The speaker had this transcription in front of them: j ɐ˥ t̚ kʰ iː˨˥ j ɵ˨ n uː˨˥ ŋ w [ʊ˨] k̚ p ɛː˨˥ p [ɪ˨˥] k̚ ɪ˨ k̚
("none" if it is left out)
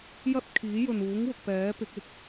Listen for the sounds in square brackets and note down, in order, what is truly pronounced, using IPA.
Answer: ʊ˨, ɪ˨˥

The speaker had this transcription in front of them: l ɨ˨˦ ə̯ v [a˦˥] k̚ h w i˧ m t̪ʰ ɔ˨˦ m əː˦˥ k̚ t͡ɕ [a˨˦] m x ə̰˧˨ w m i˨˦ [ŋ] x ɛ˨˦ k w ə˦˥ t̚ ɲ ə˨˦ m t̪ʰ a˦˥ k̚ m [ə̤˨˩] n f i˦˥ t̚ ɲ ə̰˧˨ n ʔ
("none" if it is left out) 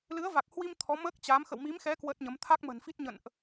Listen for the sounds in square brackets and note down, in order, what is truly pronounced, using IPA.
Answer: a˨˩, a˨˦, m, ə̤˨˩

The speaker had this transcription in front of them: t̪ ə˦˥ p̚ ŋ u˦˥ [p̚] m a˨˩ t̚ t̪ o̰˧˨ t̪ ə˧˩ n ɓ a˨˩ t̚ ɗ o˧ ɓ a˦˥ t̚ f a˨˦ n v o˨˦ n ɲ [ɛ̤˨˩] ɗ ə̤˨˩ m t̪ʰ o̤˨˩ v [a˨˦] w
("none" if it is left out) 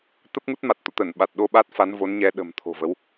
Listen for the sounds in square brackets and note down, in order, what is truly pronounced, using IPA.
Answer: t̚, ɛ˨˦, ə˨˦

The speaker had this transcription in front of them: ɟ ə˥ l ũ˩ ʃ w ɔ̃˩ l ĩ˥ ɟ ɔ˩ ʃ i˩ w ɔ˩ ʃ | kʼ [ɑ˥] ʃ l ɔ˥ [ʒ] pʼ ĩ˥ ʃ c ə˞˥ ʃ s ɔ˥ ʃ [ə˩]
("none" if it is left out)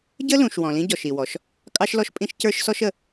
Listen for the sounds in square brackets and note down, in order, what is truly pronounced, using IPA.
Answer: ɑ˥, ʃ, ə˩

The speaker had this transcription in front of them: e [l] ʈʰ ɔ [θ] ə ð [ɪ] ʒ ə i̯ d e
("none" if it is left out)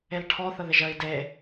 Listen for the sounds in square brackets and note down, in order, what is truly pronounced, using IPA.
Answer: l, θ, ɪ

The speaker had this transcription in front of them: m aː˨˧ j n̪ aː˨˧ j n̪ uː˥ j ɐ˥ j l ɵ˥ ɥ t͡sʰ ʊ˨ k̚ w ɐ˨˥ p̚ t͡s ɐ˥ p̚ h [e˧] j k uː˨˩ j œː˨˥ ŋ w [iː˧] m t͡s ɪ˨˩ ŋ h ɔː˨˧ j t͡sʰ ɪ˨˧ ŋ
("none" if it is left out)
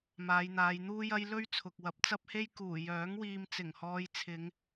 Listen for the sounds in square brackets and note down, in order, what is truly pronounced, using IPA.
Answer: e˥, iː˧

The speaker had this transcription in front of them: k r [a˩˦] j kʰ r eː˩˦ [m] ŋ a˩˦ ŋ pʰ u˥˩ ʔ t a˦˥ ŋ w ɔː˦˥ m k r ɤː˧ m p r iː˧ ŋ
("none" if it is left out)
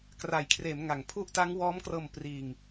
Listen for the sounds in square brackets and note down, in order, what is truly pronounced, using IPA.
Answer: a˩˦, m

